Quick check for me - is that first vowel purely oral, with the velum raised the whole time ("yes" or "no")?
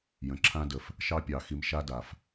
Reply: no